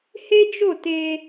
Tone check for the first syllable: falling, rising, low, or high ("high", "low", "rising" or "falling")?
high